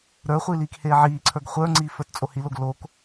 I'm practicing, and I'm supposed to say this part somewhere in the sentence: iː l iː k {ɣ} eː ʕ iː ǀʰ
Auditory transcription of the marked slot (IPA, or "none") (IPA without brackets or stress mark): h